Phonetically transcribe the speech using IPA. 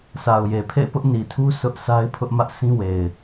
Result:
sʰ a˨ ʊ̯ j e˨ pʰ ḛ˦˨ ɪ̯ p ʊ˦ ʔ n i˨ tʰ u˦ sʰ ʊ˦ ʔ s a˦ ɪ̯ pʰ ʊ˦ ʔ m ä˦ ʔ sʰ ĩ˦ w e˨ ɪ̯

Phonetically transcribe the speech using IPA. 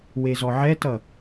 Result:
w e z ɔ ʕ ɛ t ʌ

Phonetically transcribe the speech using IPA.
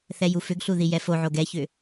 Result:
θ ɛ j u f ʏ ɡ ɬ u ð i j ɛ f o ʕ o ɡ ɛ ç ʏ

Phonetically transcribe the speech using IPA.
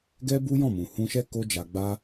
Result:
ɡ ɛ˦ b u˦ j ɔ̃˦˨ m ũ˨ h ũ˧ ʃ ɛ˦ k o˦ d͡ʒ a˧ ɡ͡b a˦

